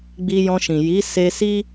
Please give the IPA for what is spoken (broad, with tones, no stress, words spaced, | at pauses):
ɡ͡bi˧jɔ̃˧ʃĩ˨ ji˨˦ se˧si˦